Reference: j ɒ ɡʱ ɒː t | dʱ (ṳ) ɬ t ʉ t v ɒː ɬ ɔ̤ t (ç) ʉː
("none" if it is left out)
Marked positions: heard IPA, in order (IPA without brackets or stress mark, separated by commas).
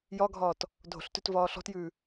o̤, j